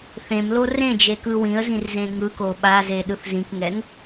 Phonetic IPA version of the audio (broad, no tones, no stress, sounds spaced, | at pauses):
θ ẽ m l o r ẽ d͡ʒ e k ɯ w ĩ ə̯ z ĩ r z ẽ ŋ ɯ k o ɓ a z e ɗ ɯ θ z ĩ k ŋ ɛ ŋ